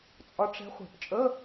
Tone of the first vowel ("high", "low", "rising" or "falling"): rising